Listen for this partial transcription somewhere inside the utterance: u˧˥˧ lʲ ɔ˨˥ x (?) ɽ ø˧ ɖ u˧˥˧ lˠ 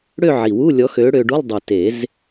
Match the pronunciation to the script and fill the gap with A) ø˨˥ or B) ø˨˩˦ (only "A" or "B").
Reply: A